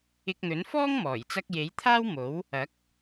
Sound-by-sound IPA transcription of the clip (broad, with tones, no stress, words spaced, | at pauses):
ɪ˧k̚n̪ɵ˨˥n fɔː˥ŋmɔː˨˩jt͡sɐ˧k̚ je˨˥j t̪ʰaː˥wmo˨˥w | ɐ˨˥k̚